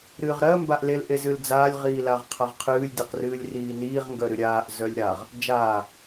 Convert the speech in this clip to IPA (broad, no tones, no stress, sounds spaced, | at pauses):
ɾ ɨː ʁ ɾ ɜ m b a ʔ l e l ʔ e z ɨ l d͡z aː lʲ ʁ iː l a ʁ qʰ a ʁ qʰ ɨː lʲ d e q r ɨː lʲ r iː n iː ʁ ŋ ɡ œ ɾ ɨ ɾʲ aː ʔ z œ lʲ ɾ a ʁ | d͡ʒ aː